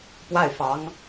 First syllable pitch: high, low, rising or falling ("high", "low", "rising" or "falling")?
falling